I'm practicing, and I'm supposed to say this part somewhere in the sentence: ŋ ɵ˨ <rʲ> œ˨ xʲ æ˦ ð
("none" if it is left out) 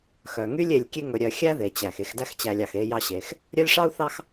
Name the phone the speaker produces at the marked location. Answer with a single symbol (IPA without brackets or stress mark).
ɾʲ